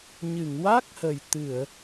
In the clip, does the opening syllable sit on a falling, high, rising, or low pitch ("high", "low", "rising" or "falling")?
low